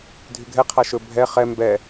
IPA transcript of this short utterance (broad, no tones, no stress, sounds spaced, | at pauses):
dʱ y ɡʱ ɛ qʰ a ʃ ɵ bʱ ɛ χ ɛ m b ɛ